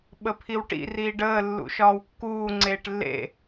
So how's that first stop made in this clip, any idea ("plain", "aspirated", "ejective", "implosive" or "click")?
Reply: implosive